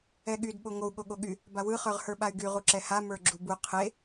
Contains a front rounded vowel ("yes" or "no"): yes